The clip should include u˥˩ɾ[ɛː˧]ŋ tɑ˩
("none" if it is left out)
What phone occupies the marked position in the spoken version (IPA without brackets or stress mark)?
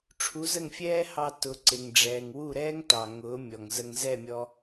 ɛː˥